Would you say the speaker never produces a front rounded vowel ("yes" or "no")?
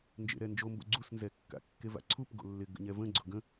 yes